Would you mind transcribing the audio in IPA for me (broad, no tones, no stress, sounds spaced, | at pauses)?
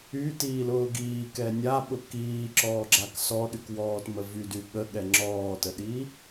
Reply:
y t iː l ʊː ɡ iː k ɛ nʲ a ɓ ʊ k iː ǁ ɔː ɡ͡ǁ a k s ɔ ɗ y k w ɔː t m ə v y d y ɠ ə ɠ ɛ ŋ͡ǁ ɔː t ə ɗ i